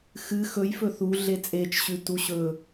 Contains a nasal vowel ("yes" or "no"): no